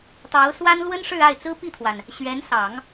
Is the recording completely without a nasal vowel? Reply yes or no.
yes